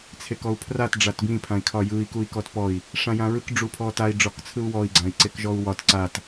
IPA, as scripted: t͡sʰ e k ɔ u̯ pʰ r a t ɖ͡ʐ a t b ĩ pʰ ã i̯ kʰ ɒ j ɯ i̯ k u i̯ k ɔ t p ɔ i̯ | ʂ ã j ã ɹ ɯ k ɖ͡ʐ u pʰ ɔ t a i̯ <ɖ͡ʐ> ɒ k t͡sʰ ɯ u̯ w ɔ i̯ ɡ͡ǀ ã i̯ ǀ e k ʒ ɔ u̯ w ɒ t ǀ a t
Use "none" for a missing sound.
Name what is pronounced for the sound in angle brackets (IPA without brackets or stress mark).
ɖ͡ʐ